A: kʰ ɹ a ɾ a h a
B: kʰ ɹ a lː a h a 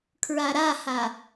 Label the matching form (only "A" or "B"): A